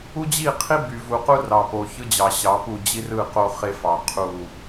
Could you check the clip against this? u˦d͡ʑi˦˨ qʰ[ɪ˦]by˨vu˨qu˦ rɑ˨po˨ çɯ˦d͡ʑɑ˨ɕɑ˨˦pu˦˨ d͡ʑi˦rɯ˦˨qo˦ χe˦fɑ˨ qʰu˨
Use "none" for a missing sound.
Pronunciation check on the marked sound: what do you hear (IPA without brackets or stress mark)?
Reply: i˦